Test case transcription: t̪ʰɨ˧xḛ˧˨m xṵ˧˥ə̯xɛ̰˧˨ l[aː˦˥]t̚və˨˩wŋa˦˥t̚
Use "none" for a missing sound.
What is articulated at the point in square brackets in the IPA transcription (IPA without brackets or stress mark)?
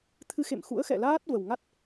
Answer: aː˦˥